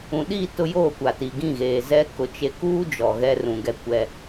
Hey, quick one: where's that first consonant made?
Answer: tongue tip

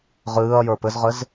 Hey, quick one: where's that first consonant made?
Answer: uvula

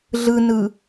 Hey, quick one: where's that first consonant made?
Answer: tongue tip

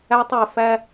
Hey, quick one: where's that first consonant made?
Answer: tongue tip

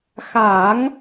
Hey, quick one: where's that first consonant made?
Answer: velum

